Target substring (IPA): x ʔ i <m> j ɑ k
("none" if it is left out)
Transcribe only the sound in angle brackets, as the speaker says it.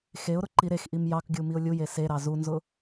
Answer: m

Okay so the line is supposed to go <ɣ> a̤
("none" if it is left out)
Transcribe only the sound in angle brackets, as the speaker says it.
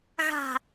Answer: ɣ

